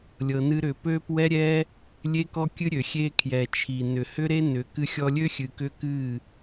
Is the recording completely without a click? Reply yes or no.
yes